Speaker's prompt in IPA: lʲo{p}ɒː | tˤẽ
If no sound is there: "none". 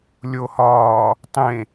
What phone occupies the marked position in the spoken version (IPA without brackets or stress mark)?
h